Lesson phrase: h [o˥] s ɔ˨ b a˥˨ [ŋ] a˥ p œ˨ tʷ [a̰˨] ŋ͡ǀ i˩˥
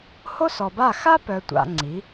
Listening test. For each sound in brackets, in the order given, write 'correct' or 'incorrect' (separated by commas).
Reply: correct, incorrect, correct